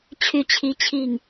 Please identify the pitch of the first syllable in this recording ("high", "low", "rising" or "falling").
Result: falling